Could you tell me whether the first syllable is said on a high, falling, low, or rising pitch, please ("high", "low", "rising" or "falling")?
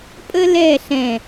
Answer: high